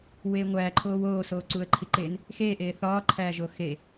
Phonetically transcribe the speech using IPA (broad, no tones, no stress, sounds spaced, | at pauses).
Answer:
w eː ŋʷ æː ǃʰ oː w oː s oː ǀ u ə̯ ǃʰ i ǃ e n | x eː ʔ eː θ ɒː ǃʰ æː ʒ o x e